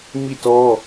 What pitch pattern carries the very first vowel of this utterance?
falling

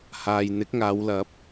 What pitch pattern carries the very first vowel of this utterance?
low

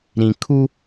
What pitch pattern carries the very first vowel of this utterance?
low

